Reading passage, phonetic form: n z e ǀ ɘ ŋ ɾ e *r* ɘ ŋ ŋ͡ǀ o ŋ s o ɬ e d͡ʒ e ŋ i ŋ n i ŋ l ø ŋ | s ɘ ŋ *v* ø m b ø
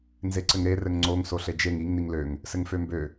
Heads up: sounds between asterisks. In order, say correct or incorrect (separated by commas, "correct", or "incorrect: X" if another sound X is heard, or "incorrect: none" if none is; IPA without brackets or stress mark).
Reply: correct, incorrect: f